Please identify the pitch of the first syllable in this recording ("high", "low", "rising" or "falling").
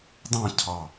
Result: falling